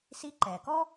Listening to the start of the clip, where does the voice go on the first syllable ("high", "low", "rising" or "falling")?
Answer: rising